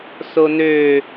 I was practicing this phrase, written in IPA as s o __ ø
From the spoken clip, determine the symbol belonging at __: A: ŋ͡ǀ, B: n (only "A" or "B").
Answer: B